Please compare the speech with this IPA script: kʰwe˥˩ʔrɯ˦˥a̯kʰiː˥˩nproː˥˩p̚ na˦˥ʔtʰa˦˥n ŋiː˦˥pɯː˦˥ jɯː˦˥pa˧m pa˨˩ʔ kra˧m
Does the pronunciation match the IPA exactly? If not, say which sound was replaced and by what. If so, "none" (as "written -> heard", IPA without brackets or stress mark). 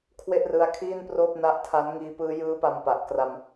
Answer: none